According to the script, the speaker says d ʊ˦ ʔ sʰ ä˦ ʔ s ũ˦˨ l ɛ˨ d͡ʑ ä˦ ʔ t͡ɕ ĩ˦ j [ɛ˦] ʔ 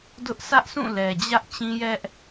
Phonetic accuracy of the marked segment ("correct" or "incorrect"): correct